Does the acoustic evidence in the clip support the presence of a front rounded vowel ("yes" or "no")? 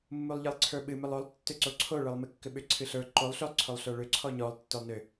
yes